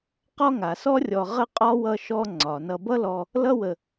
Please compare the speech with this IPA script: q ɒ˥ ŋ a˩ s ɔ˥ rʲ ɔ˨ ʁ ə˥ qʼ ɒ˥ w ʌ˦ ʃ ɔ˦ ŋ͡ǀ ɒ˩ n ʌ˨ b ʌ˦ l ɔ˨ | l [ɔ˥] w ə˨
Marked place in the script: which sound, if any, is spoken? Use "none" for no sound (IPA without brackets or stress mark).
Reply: ʌ˥